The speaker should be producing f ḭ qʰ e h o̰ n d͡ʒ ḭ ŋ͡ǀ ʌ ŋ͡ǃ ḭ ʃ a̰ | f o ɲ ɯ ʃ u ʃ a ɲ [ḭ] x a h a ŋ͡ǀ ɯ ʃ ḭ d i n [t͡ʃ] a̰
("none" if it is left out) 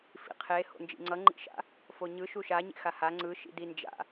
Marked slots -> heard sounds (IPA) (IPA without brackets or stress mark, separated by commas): ḛ, d͡ʒ